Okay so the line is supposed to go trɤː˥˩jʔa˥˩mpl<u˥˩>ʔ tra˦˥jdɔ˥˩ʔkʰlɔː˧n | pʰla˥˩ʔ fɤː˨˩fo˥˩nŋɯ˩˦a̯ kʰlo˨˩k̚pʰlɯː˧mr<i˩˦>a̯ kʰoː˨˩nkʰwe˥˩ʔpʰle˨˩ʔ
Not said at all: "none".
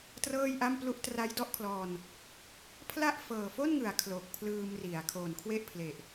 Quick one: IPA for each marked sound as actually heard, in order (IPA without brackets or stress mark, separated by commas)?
u˥˩, i˩˦